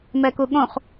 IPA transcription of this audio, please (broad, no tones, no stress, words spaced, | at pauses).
mɛkuɠõχ